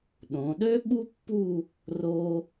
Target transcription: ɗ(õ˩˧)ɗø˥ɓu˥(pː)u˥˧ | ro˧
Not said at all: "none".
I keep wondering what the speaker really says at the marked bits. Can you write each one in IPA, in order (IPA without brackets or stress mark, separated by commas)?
õ˩˧, pː